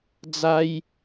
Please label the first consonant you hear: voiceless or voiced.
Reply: voiced